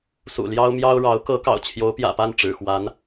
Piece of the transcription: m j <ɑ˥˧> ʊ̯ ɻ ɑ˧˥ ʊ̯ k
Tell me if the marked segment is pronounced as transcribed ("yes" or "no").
no